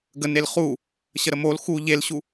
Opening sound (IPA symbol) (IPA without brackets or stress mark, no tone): ɡ